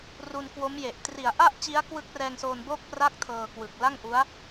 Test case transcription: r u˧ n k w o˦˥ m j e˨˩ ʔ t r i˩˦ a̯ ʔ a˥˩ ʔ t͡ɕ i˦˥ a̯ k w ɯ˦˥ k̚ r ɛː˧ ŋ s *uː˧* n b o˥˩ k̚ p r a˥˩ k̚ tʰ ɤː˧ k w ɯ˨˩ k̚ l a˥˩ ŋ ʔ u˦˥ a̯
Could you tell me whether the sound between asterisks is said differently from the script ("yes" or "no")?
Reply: yes